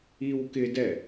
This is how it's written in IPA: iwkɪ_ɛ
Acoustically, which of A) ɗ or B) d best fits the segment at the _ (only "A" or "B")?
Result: B